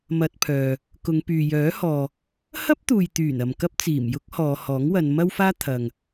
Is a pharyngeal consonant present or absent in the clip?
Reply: absent